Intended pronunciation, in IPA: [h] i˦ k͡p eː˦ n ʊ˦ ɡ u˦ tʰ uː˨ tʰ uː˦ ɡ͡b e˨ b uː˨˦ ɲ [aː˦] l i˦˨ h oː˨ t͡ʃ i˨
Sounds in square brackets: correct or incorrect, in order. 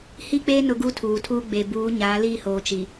correct, incorrect: aː˨˦

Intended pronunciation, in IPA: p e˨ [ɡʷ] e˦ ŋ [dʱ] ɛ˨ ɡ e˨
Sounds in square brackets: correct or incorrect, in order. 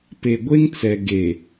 correct, incorrect: t͡s

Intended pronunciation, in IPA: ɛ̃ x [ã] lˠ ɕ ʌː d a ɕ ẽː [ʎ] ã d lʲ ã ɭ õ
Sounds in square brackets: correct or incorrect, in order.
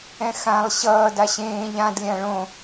correct, correct

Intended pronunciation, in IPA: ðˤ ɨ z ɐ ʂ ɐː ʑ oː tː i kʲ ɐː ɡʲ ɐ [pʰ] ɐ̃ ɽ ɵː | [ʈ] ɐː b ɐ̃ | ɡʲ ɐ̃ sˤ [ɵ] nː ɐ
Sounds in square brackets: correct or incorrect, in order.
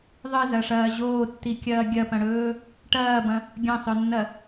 incorrect: p, correct, correct

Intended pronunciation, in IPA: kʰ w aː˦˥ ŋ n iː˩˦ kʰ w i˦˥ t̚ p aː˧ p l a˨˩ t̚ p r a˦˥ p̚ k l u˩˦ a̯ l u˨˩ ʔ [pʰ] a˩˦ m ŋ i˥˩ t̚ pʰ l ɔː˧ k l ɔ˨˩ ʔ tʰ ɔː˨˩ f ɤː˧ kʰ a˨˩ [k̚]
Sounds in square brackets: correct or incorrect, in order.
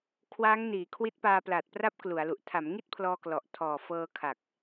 incorrect: tʰ, correct

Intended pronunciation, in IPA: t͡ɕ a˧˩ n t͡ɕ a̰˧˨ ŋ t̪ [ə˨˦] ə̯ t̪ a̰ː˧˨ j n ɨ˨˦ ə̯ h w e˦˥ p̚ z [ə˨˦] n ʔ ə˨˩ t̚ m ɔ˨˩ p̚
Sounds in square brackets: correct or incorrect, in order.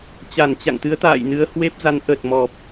incorrect: ɨ˨˦, incorrect: a˨˦

